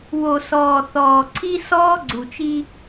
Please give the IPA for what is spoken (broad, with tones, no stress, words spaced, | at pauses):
wo˨sɔː˨ θɔː˨ǀʰi˦ sɔː˦ɡ͡ǀu˨t͡ʃi˦